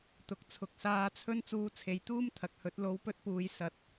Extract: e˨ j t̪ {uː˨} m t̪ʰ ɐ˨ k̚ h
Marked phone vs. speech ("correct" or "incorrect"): incorrect